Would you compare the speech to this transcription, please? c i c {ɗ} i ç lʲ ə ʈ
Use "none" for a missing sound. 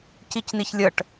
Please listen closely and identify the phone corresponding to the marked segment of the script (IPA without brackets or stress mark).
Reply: n